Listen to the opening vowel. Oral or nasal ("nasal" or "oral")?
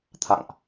oral